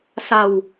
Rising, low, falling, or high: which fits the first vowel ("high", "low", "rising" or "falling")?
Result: low